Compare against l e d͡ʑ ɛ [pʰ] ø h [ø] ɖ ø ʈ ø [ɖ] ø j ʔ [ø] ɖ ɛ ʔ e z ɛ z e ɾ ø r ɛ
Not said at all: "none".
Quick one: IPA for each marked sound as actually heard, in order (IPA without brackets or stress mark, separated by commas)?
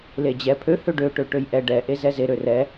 pʰ, ø, ʈ, ɛ